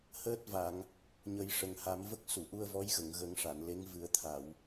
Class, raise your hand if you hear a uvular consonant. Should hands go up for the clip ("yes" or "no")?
no